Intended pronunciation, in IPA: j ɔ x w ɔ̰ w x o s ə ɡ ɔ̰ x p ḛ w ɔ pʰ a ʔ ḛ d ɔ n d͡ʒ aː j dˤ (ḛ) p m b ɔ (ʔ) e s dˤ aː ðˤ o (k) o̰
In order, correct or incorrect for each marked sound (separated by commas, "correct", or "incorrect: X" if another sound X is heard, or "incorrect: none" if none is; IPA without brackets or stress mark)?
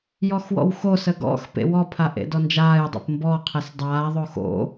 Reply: correct, incorrect: qʰ, incorrect: x